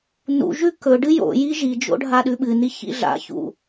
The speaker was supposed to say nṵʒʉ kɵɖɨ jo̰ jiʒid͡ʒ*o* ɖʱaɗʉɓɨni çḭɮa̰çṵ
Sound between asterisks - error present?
yes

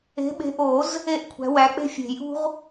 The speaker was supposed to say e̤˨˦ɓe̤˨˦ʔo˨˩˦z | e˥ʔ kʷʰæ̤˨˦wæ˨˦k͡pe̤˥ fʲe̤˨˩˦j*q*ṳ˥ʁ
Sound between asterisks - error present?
yes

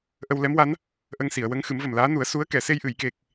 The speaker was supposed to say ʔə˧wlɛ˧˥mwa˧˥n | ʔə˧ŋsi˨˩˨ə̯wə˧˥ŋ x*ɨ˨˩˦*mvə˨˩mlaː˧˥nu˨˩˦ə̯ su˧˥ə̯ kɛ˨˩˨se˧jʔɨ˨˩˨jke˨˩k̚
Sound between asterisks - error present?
no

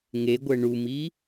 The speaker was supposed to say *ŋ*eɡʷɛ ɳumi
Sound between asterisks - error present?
no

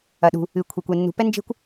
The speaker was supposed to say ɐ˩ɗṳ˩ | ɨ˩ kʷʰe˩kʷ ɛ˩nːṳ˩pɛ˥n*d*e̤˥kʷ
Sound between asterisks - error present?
yes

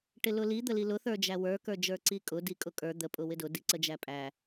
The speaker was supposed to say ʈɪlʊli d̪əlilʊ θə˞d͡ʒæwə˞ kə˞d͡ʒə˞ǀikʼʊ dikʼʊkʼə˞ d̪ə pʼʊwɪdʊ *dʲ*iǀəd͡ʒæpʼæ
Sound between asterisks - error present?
yes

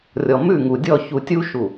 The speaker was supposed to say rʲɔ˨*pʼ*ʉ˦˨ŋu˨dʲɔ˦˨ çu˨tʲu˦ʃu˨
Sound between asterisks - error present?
yes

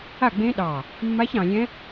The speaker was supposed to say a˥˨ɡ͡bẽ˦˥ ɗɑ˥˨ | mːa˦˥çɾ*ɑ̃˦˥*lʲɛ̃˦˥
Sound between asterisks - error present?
yes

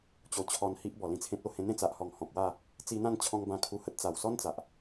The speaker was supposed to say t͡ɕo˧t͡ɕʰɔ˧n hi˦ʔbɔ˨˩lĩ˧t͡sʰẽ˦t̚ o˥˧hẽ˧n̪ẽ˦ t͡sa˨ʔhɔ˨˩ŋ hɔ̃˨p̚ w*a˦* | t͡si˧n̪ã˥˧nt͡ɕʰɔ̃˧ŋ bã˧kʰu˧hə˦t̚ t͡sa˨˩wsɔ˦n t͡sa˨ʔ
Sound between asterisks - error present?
yes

